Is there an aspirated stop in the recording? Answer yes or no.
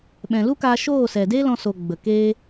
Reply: no